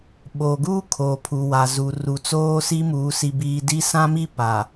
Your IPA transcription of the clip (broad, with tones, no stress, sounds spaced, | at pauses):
ɓ oː˨ ɡ uː˦ kʰ oː˨ pʰ u˨ w a˨ z u˨ r u˨ t͡s oː˦ s i˦ m uː˨˦ s i˦ b iː˦ d i˦ s ã˦ m i˦ p a˨